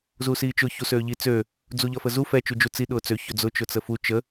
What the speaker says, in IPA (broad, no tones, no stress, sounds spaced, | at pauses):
z u s iː t͡ʃ ʊ ç u s øː ʎ i t͡s ø | d͡z u ʎ ʌ f ə z u f ɛ t͡ʃ u d͡ʒ u t͡s i ɗ ʊː t͡s ø ç ø d͡z ʊ t͡ʃ ʊ t͡s ə f u t͡ʃ ə